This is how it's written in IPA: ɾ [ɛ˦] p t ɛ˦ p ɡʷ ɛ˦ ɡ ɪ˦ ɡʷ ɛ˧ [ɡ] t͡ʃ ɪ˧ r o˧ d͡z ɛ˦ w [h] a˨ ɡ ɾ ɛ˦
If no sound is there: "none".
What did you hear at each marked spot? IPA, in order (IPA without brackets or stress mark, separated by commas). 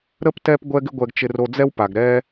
ə˦, ɡ, p